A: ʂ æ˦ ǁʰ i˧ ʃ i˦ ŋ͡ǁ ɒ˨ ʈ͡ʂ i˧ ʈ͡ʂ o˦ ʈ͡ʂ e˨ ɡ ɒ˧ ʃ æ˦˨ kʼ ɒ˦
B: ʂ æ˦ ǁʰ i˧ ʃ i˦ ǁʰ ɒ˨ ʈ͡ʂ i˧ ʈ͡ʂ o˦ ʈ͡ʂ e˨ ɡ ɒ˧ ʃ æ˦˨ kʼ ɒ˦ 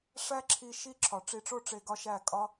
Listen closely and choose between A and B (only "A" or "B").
B